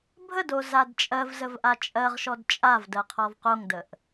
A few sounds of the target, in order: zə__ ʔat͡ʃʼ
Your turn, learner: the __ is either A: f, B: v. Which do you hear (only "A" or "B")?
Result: B